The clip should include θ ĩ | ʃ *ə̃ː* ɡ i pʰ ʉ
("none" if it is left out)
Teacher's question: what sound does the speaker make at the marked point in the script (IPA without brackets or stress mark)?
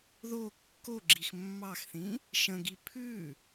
ə̃